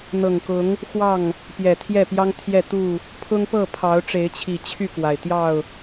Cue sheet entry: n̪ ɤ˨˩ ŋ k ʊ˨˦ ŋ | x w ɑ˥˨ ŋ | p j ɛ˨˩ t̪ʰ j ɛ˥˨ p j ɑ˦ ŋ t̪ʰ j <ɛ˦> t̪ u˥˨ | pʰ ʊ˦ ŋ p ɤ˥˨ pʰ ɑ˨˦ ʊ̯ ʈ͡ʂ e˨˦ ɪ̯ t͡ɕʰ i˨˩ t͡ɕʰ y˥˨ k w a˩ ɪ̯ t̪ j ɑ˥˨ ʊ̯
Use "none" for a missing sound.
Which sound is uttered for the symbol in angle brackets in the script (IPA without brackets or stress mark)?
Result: ɛ˥˨